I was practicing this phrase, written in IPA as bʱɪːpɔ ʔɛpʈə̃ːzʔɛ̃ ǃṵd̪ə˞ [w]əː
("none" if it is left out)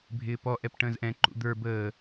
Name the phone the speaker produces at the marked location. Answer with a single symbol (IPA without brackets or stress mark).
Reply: b